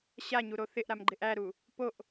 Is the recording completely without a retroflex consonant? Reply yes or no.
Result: yes